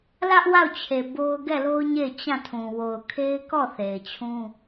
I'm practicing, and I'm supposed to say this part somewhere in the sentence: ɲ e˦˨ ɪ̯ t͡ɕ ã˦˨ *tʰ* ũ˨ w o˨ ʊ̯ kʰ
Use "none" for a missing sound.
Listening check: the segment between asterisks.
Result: tʰ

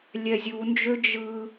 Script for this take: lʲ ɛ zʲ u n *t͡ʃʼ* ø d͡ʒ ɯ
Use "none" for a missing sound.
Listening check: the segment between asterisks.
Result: d͡ʒ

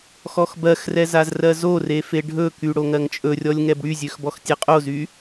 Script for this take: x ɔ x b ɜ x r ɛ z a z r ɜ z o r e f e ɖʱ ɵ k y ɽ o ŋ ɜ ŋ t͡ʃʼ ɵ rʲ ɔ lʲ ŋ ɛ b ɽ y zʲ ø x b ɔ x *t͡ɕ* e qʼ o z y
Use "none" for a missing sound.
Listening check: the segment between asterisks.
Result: tʲ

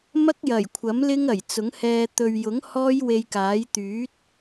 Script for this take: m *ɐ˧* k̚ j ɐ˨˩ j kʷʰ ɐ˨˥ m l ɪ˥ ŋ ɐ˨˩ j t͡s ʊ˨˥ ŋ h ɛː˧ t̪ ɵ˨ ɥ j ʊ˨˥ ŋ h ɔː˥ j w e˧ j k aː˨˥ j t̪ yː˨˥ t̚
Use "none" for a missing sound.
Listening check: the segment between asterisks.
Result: ɐ˥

